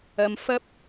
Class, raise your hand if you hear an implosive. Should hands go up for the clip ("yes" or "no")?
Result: no